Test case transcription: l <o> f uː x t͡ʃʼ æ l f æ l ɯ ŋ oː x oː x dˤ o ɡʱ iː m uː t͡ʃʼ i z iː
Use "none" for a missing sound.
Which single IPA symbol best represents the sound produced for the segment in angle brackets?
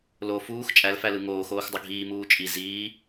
o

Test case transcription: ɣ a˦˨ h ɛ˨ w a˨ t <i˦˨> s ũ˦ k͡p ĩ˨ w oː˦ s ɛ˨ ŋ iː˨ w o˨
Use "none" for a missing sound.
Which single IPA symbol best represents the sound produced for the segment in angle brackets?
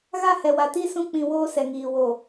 i˦˨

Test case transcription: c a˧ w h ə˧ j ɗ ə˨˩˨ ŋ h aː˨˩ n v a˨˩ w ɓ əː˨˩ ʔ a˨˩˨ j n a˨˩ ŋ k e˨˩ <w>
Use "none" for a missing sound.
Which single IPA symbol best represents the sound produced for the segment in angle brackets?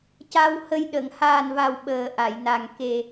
none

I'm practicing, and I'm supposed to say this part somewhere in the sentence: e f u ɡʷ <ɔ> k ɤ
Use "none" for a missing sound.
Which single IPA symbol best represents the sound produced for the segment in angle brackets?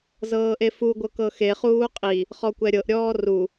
ɤ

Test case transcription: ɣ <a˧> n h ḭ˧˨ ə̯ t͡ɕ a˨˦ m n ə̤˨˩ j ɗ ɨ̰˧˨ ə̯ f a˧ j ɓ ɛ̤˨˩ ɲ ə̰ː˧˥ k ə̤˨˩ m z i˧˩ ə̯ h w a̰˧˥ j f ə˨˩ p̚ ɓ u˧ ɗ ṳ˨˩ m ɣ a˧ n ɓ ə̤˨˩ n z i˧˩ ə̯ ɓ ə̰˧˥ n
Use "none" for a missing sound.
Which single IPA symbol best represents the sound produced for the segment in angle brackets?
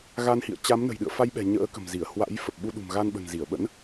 a˧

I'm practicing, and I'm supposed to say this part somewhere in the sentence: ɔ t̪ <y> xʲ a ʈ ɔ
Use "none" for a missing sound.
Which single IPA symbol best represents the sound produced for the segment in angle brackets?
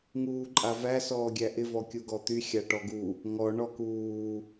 y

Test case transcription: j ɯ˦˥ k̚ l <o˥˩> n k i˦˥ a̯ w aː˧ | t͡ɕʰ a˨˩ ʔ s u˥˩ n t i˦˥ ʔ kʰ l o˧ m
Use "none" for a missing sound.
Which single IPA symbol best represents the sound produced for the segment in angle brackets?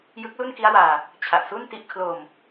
u˥˩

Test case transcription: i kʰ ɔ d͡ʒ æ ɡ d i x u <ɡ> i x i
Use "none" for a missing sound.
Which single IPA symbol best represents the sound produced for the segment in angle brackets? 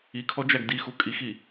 kʼ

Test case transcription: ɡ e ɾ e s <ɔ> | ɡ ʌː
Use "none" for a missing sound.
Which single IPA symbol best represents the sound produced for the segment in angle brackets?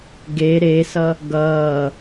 ʌ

